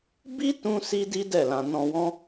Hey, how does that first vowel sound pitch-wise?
high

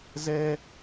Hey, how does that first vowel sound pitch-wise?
high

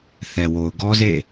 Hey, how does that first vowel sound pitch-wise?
low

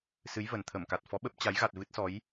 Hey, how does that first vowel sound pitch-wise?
rising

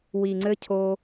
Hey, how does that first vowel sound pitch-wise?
low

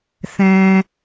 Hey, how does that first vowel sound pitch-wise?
low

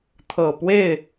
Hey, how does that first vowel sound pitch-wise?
low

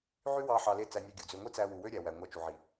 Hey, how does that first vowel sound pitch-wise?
high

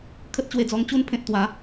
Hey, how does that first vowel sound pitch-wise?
high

